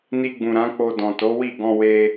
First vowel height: high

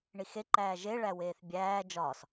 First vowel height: high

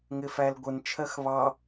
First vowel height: high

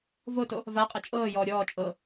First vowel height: mid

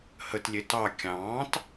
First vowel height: mid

